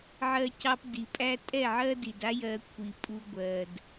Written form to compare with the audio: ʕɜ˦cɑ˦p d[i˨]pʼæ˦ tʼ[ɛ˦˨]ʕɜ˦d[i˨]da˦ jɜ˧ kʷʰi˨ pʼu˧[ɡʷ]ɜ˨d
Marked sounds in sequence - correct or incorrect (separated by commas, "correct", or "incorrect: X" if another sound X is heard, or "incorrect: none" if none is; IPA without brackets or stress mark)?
correct, correct, correct, correct